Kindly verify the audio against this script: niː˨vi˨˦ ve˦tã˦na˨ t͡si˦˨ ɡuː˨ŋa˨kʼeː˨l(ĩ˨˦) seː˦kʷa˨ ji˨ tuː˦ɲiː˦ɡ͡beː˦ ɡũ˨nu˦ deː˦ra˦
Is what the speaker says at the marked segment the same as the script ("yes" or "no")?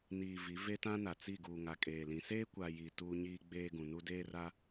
yes